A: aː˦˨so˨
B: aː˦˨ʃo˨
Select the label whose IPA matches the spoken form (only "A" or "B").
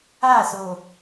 A